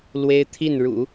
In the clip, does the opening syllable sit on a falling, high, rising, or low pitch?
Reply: high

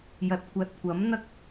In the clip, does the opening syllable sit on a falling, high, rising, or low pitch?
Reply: low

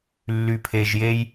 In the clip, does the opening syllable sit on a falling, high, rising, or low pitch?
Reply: low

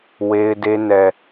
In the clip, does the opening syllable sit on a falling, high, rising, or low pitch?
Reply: high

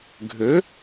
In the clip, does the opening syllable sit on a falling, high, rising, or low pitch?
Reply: rising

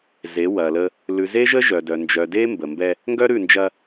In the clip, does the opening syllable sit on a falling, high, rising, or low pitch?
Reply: rising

